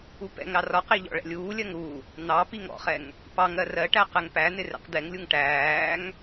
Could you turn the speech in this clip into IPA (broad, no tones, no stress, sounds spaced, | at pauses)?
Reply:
u p ɛ̰ ŋ ɾ ɑ r ɒ q i ʎ ɔ̰ ɭ ɛ̰ lʲ uː lʲ ɜ ŋ ɾ u | n̪ ɑ p i ŋ ɔ̰ χ ɛ ŋ | p ɑ ŋ ɜ r ɜ ʈ æ q ɛ ŋ p æ n̪ ɪ r ɛ̰ q d̪ ɛ ŋ lʲ u ŋ ʈ æː ŋ